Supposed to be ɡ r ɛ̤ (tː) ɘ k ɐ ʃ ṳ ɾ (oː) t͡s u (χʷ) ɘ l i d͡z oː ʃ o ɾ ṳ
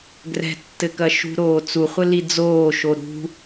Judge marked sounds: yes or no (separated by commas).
yes, yes, yes